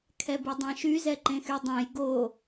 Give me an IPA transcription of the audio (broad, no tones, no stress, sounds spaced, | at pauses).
kʰ ɛ b y dˤ ã ʃ y z ɛ ǃ ẽ x y dˤ ẽ j ɡ o